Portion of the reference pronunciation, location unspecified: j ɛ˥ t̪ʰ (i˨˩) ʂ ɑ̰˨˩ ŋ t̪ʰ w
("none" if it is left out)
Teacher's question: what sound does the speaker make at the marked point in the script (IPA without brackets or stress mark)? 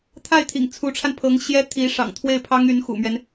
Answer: i˧˥